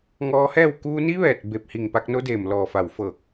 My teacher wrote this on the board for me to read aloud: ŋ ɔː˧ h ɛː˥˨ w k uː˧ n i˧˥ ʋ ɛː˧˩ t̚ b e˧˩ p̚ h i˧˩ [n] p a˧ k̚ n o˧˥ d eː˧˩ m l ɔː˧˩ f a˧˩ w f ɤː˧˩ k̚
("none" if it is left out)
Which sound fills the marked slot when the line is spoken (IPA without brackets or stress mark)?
ŋ